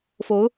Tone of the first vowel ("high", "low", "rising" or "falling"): rising